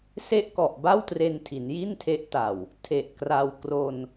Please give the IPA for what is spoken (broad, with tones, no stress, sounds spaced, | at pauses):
s e˦˥ ʔ k ɔ˨˩ ʔ b a˥˩ w t r e˧ n tʰ i˩˦ n j i˥˩ n tʰ e˦˥ ʔ t a˨˩ w | tʰ e˨˩ ʔ k r a˧ w k r o˧ n